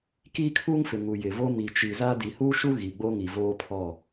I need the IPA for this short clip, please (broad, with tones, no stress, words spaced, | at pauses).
kiː˦kʰuː˦ŋfɪ˨ ŋu˨jɪ˨vo˦ mi˨t͡ʃi˨za˦ di˨huː˦ʃu˦ ɣi˨ɡ͡bo˦ŋi˨ voː˦pʰɔ˦˨